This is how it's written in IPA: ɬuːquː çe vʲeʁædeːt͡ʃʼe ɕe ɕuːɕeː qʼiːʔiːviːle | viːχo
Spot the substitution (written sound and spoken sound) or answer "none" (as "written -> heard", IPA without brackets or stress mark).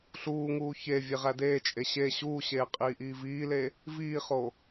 q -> ŋ